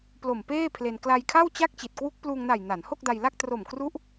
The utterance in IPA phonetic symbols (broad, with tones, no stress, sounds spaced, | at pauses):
p l o˨˩ m p eː˥˩ pʰ l e˧ n k l a˧ j kʰ a˥˩ w t͡ɕ a˥˩ k̚ t͡ɕ i˨˩ t̚ k w u˦˥ k̚ p l uː˧ ŋ n a˨˩ j n a˩˦ n h o˥˩ k̚ d a˧ j l a˥˩ k̚ t r o˨˩ m k r u˦˥ ʔ